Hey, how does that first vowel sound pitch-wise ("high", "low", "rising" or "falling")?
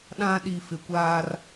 high